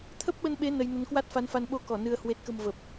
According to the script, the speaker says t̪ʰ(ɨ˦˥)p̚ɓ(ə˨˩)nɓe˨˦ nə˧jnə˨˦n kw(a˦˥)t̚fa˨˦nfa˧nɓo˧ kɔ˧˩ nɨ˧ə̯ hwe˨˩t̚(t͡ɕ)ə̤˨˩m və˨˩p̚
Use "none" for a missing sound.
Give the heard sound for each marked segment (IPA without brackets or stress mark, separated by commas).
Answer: ə˦˥, ə˧, a˦˥, k